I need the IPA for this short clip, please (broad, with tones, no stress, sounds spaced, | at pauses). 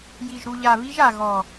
j i˨ ʒ ɾ u˨ ʎ a˨ β i˦ ʒ a˨ ɣ ɔ˨